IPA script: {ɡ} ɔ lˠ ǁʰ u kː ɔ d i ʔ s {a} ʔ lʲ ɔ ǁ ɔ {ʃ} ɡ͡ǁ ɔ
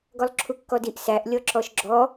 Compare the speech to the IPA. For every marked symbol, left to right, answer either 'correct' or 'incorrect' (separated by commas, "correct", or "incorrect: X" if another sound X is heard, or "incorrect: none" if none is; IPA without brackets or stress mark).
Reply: correct, incorrect: æ, correct